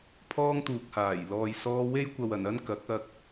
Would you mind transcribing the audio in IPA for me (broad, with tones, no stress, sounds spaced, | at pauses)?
pʰ ɔː˥ ŋ t̪ uː˨ k̚ h aː˨˩ j l ɔː˨ j s ɔː˧ w e˥ j kʷ ɐ˨ w ɐ˨˩ n ɐ˥ n k ɐ˨˥ k̚ ɐ˧ k̚